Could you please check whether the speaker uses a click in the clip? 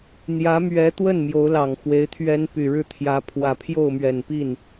no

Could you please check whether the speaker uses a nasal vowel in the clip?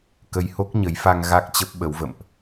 no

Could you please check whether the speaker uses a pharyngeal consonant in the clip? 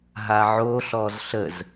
yes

